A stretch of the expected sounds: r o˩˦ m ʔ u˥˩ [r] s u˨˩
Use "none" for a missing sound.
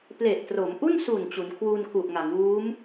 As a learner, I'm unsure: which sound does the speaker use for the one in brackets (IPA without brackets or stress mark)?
n